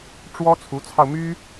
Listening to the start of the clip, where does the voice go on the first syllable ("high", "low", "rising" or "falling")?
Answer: high